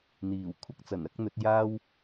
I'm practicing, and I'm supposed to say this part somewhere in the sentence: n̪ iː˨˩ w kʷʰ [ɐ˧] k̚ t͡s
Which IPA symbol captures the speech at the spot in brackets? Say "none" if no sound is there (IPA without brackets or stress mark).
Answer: ɐ˥